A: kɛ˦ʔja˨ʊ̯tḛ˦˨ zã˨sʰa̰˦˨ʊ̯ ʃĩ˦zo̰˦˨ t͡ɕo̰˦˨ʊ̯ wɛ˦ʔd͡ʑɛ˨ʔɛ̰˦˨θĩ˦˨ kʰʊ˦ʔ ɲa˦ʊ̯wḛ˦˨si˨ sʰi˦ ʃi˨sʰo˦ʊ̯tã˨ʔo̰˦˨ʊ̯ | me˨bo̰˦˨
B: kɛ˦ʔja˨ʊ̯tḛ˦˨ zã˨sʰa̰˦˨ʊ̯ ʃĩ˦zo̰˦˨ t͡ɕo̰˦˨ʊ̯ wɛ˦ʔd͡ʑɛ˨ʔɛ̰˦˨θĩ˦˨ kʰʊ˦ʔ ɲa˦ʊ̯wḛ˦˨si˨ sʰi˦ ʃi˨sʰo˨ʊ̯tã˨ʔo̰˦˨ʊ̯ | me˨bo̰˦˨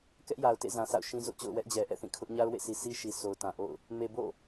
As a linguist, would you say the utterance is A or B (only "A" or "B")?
B